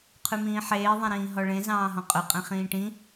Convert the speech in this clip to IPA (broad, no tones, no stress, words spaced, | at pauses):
qʰʉmĩːħeː ðˤẽɾĩːɦɔɭẽ zɑ̃ːɦɔ̃qʼɵ qʼẽχĩːʈĩ